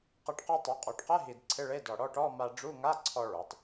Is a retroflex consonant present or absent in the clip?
present